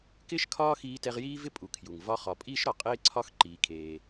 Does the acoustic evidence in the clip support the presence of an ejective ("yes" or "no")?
yes